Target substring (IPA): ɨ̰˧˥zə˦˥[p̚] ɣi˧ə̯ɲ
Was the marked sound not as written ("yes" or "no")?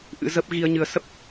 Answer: no